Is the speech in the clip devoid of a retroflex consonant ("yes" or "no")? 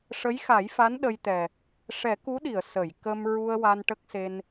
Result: no